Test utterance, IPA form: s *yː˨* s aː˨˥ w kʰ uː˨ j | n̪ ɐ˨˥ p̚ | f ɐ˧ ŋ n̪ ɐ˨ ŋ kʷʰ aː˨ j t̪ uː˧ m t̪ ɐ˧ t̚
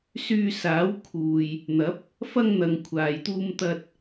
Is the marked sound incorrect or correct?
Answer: incorrect